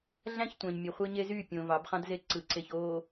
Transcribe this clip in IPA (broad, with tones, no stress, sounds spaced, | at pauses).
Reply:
ɮ æ̃˦ ç tʷ æ̃˨ ɲ mʲ ø˨ χʷ e˦ ɲ e˦ z y˦˨ pʲ õ˨ v ɑ˨˦ b χ ɑ̃˦ d z e˦ ǀ ɯ˨ ǀ e˨ ç oː˨